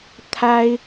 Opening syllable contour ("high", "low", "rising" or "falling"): high